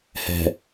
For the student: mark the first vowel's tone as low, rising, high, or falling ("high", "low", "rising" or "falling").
low